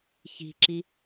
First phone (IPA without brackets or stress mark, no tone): ç